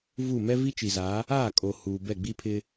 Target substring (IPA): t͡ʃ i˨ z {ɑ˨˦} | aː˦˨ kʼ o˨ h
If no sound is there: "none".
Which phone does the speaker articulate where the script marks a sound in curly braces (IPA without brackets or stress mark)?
a˨˦